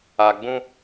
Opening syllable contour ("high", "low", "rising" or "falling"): low